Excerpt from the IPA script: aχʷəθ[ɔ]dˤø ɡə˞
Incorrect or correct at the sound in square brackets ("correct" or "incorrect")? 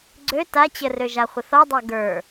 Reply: correct